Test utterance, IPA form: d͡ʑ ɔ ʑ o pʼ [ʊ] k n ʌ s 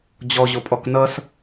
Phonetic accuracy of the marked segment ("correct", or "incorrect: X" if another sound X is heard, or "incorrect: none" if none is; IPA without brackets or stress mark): incorrect: ɔ